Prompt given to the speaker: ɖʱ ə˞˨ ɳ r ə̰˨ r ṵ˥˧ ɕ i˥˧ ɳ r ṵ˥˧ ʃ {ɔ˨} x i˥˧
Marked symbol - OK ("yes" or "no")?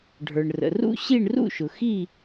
no